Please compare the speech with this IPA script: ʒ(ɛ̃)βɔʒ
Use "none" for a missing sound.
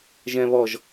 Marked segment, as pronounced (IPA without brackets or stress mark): ɛ̃